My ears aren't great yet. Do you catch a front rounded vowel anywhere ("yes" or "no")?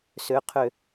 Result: yes